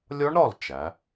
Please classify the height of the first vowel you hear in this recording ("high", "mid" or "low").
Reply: low